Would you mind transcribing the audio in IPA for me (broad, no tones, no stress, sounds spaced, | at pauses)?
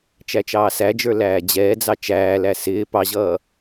t͡ʃ æ t͡ʃ ɑː s æ d͡ʒ ə˞ l æː d͡ʑ ɛː d͡z ɑ t͡ʃ æː l æ s ɪː p ɑ ʑ ʌː